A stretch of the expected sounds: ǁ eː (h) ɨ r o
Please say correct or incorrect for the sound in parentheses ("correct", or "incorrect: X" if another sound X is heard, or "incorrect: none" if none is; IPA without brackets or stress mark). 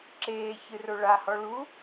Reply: incorrect: ç